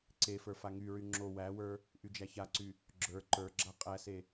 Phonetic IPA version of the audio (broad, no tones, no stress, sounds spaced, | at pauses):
ǀ e f ə˞ f a ŋ y ɹ y ŋ͡ǁ o w æ w ə˞ | ʔ y d͡ʒ æ ç a ǀ y | ɡ͡ǁ ə˞ ǃ ə˞ ɡ͡ǁ a qʼ æ s e